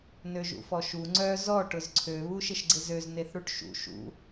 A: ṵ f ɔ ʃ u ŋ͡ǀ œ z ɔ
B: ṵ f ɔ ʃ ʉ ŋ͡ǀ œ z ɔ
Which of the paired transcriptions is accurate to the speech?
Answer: A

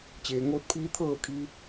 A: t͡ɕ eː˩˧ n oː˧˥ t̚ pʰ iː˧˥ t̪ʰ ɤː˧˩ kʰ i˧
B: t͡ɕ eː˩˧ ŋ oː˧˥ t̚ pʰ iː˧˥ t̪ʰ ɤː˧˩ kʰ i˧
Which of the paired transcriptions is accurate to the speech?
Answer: B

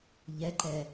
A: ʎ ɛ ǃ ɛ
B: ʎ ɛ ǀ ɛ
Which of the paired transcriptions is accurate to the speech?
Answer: A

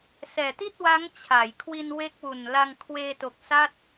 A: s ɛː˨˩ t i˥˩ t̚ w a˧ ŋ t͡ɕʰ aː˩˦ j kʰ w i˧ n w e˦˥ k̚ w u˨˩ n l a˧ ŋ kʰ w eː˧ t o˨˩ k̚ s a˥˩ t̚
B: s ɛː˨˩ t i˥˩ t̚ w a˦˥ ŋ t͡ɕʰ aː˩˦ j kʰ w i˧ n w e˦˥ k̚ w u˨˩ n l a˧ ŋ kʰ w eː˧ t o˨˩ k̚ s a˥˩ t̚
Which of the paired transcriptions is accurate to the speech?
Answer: B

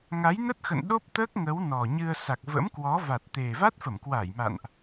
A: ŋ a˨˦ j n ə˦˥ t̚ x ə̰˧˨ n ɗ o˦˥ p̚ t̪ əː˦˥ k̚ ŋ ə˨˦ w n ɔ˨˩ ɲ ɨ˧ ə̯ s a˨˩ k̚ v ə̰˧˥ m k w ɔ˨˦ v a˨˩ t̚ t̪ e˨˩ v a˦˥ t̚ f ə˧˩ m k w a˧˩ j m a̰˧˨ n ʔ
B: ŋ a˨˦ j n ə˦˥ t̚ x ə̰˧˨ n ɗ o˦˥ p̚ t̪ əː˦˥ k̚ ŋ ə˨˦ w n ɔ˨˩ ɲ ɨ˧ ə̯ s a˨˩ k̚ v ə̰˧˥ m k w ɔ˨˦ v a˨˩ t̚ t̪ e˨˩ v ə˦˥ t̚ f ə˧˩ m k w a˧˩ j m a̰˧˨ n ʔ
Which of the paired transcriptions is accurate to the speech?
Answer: A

